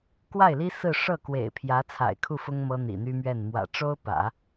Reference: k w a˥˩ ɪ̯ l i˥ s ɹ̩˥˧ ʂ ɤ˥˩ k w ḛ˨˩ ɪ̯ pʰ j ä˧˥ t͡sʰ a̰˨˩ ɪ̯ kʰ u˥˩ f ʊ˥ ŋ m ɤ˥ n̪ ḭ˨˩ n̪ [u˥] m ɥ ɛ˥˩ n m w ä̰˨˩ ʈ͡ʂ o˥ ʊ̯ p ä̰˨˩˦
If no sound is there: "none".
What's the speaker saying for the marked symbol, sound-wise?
y˥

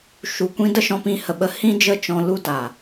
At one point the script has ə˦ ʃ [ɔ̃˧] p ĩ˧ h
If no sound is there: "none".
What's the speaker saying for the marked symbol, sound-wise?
ɔ̃˧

